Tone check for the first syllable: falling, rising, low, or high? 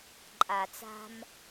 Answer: low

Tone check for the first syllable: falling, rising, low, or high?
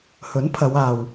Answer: rising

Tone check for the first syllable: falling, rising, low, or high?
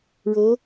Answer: rising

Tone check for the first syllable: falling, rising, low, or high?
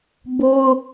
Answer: high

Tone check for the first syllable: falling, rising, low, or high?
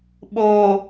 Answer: low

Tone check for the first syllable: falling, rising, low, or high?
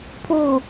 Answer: falling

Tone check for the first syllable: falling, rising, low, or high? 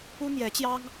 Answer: high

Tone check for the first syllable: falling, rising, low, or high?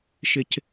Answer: low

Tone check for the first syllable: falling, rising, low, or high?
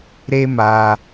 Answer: high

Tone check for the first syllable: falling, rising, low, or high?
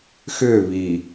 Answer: falling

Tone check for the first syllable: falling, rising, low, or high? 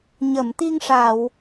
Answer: low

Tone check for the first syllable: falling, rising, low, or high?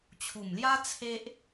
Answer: low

